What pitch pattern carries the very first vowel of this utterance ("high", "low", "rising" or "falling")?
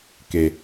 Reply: low